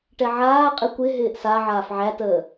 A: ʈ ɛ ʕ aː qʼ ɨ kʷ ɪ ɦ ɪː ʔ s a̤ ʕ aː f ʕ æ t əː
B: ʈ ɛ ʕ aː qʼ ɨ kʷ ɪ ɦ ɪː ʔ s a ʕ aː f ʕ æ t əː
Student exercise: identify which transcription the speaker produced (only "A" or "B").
B